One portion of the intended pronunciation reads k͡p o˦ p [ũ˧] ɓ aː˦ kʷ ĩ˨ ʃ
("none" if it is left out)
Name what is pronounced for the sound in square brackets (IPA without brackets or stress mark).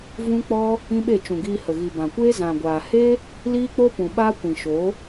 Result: ũ˨